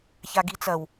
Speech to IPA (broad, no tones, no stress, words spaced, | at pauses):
çaɡit͡sɐw